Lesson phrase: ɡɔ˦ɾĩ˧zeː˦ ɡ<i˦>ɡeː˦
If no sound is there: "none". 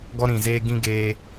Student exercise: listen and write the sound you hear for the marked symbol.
ĩ˦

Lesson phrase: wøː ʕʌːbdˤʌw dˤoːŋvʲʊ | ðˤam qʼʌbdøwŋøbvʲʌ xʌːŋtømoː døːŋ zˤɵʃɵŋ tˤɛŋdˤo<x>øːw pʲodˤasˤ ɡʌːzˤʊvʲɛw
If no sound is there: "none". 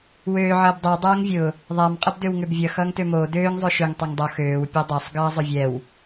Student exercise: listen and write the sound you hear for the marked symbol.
x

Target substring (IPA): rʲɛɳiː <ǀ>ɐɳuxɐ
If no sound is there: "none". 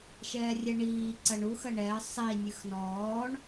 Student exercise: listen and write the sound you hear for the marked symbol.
ǀ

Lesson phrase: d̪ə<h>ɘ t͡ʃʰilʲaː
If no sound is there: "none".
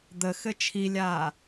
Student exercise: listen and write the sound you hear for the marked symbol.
x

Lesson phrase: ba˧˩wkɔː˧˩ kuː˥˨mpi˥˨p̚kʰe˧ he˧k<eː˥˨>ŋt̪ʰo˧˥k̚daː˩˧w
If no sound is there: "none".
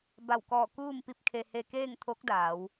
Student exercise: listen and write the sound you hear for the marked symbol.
eː˥˨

